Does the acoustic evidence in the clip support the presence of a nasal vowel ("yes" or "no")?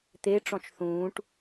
yes